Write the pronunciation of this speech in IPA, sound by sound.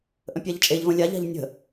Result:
ʔ ə̃ pʲ a ʎ t͡ʃʼ e ʎ v ə̃ lʲ a ʎ a̤ ʎ nʲ ə̤

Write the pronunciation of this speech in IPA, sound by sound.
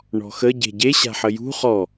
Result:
ɳ ɔ̤ x ə ɟ e̤ ɟ e ɕ a̤ ħ ə j ṳ χ ɔ

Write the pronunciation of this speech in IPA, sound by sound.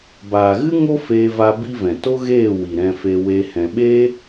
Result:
b aː˨ ɣ ɨ˦ ŋ o˦ f eː˧ v a˧ b i˦ v ɛ̃˨ t o˦ ɣ eː˦˨ w i˨ ɾ ɛ̃˧ f e˧ w e˧ h ɛ̃˨ ɓ eː˦

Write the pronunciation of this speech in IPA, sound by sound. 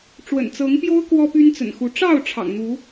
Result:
ʈ͡ʂ w ə̰˨˩ n t͡s ɤ˨˦ ŋ p j o˦ ʊ̯ k w ɔ˦ p y˦ n t͡s ə̰˨˩ n x u˨˦ ʈ͡ʂ ɑ˥˨ ʊ̯ ʈ͡ʂʰ ɑ̰˨˩ ŋ n̪ u˨˦

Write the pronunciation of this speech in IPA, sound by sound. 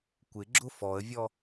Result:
kʷ ɪ ɡ͡ǁ ʊ f ɔ ə̯ vʲ ɔ

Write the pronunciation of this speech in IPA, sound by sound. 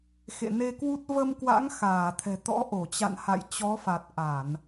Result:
x ḛ˧˨ n e˧ k w u˦˥ t̚ v ə˧ m k w a̰˧˥ ŋ x aː˧˩ t̪ʰ ɛ̤˨˩ t̪ ɔ̰˧˥ ʔ o˧˩ t͡ɕ a̰˧˨ n h a̰˧˨ j t͡ɕ ɔ˨˦ f a˨˩ t̚ ʔ a˧˩˨ n

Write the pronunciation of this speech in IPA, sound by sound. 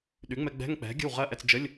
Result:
ɗ y˩˥ ŋ͡m ɛ˧ ɡ͡b ɛ̤˧˥˧ ŋ k͡p ɛ̤˩˥ ɡʲ ə̤˥˩ w ʁ ɜ˧˥˧ ʔ ɛ˧ t͡s d͡ʒ ə˧˥˧ lʲ

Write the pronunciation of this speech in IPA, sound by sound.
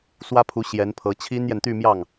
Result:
s w ä˥ pʰ u˧˥ ɕ j ɛ˧˥ n pʰ ɤ˧˥ t͡ɕʰ i˥ n j ɛ˨ n t̪ y˥˧ m j ɑ˥˩ ŋ

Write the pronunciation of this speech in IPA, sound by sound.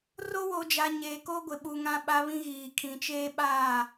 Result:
r o˦ w o˨ d͡ʒ a˨ ɲ e˨ k o˦ ɡʷ ɪ˨ ɓ u˨ ŋ ã˦ ɓ a˦ β ĩ˦ ɣ iː˨ kʰ ĩ˨ t͡ʃ eː˦ ɓ aː˦˨

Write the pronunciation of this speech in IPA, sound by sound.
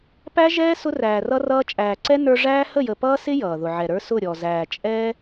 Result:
p æ˦ ʒ ɛː˦ s ʊ˦ r æː˨ r ʌ˦ r ʌː˦ t͡ʃʼ æː˨ ǀ ɛ˦ n ə˞˧ ʐ æː˦ h ə˦˨ j ə˨ p ʌː˦ s ɪ˦ j ʌː˨ ð ʊ˨ ʕ ɛ˨ ɾ ə˞˦ s ʊ˦˨ ɾʲ ɔ˨ z æː˨ t͡ʃʼ ɛː˦

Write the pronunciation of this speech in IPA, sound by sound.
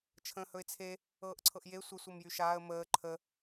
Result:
t͡ʃʰ ə̃ː h ɵ ɪ̯ t͡sʰ e | ɤː ʔ ǀʰ ɤ ʔ j e sʷ ə sʷ ɤ m j y ʃ aː ə̯ m əː ǃʰ ə

